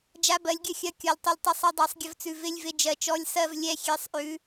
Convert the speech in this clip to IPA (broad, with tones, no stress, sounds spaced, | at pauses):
d͡ʒ a˧˥˧ b ɜ˨˦ lʲ ɡʲ ə˦˨ xʲ ɐ˧˥˧ kʲ ɔ˨ lʲ tˤ ɪ˦˨ lʲ tˤ ə˧˥˧ sˤ ɐ˦˨ dˤ a˨˦ sˤ ɡʲ ə˨˦ v t͡s ʉ˨ v ɪ˧˥˧ lʲ v ɪ˦˨ d͡ʒ ɜ˨ t͡ʃ ɔ˧˥˧ lʲ s ɜ˦˨ v lʲ ɛ˦˨ xʲ ɛ˨˦ sˤ ʔ ʉ˨˦